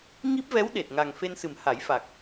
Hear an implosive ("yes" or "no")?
yes